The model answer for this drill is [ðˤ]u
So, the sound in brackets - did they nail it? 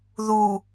no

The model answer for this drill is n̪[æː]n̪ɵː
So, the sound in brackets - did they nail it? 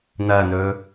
no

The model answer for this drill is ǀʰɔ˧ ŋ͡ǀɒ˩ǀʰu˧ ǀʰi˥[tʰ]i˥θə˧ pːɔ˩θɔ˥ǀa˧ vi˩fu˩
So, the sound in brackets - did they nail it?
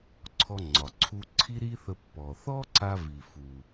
no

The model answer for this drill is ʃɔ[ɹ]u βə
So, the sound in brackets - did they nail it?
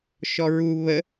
yes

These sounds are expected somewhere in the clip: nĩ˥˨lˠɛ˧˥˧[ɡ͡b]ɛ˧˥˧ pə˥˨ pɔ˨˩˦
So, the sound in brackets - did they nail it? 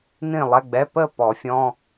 yes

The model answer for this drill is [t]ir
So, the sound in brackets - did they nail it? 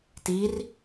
yes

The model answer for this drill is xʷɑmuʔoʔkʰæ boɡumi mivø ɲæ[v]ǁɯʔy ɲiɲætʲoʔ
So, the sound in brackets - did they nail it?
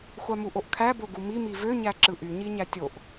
no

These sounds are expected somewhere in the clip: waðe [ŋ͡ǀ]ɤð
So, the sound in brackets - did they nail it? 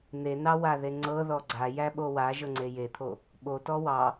yes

